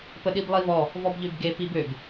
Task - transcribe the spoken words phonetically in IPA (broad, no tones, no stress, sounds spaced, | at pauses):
p ə ɗ i b lˠ i v ɔ | v ɔ b ʎ ø b ɡ e p i b ø b